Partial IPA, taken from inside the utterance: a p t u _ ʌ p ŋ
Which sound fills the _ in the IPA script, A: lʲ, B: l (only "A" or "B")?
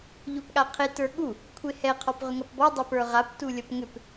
A